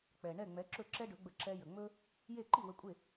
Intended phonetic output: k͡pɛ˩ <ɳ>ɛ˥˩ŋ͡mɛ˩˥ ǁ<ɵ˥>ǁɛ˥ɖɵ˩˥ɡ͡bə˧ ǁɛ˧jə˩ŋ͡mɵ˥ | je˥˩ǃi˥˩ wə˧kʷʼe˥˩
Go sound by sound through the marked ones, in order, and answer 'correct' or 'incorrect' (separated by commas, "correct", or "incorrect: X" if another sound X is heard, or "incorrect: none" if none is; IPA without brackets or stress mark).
correct, incorrect: ɵ˥˩